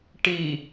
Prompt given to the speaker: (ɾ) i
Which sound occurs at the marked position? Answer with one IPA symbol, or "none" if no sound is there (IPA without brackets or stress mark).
ʈ